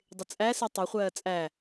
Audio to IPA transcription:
dˤ ɪ t͡sʼ æ s i tˤ o χʷ ɜː t͡sʼ æ

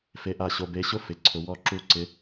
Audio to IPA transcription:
f e˧ ʔ a˦˨ ɕ o˧ b e˨˦ ɕ ʊ˦ f ɪ˨ ǀʰ ʊ˨ w ɔ˧ ǁ u˧ ǀ ɪ˨˦

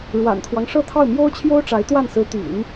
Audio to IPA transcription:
ɻ w a̰˨˩ n t̪ʰ w ɑ˦ ŋ ʂ ɤ˥˧ t̪ʰ ɑ˥˩ ʊ̯ m j o˥ ʊ̯ t͡ɕʰ j o˥ ʊ̯ ʈ͡ʂ a˧˥ ɪ̯ t̪ w a˥˩ n s ɹ̩˧˥ t̪ y̰˨˩˦ n

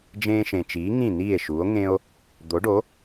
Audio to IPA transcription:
d͡ʒ ẽː˧ ʃ ẽ˩ t͡ʃ iː˩˥ ŋ ĩ˥˩ n iː˥˩ e̯ ʃ u˩˥ o̯ ŋ ẽ˥ o̯ | d̪ o˩˥ ɖ o˩˥

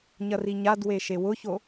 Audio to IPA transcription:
ɲ ɐ r i ɲ a d w e ʃ e w ʊ ç o

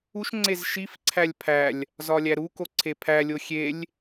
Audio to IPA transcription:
u ʃ ŋ͡ǀ e z ʃ i f ǀʰ æ lʲ pʰ æ lʲ | z ɒ lʲ æ ɾ u k o ǀʰ e pʰ æ lʲ o xʲ e lʲ

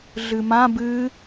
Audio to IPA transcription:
ɮ ɨ m ã b ɨ

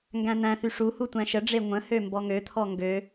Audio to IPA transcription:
ŋ ɡ æ̃ n æ̃ θ y ʂ u h u tʷ æ̃ ʃ ə ɖ͡ʐ e ŋʷ ə̃ h ø m b ɔ ŋ ø t̪ʰ ɔ ŋ ɡ ø

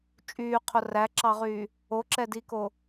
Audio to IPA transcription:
t͡ʃʼ yː qʰ o r æ ǁ ɑ ʁ yː | o ǁ ɛ d i k o

